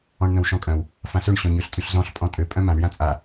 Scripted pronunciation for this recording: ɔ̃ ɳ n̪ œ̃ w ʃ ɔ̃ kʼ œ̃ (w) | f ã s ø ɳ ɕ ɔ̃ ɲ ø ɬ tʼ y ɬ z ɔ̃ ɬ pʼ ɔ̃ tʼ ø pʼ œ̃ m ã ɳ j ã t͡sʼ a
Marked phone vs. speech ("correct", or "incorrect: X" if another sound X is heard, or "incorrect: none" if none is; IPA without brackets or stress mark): correct